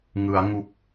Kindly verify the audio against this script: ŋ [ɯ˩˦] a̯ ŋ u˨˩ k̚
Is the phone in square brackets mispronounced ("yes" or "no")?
no